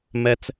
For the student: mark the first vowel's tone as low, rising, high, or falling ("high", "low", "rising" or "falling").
low